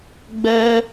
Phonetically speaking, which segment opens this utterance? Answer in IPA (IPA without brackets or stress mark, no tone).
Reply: ɡ͡b